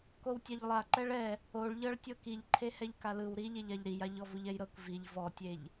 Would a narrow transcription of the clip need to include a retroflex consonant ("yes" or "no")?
yes